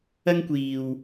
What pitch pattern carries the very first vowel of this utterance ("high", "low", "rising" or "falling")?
high